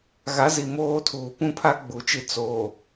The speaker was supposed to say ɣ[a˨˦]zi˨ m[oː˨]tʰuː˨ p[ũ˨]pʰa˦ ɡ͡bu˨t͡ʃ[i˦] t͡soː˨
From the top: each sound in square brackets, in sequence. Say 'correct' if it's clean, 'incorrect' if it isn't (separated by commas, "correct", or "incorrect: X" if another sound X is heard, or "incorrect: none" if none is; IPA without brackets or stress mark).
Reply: correct, incorrect: oː˦, incorrect: ũ˦, correct